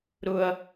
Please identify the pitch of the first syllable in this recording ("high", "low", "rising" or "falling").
high